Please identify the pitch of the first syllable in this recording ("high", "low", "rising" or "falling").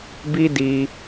high